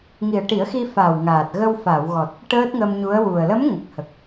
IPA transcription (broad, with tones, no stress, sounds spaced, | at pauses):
ŋ i˨˩ ə̯ ʈ i˨˩˦ ə̯ x i˧ f a˨˩ w ŋ aː˨˩ t̚ ɣ ə˧ w f a˨˩˨ w ɣ ɔ˨˩ t̚ | ʈ əː˦˥ t̚ ŋ ə˧ m ɲ u˧˥ ə̯ w u˨˩ ə̯ l ə˧˥ m ŋ ə˨˩ k̚ h ə˨˩ k̚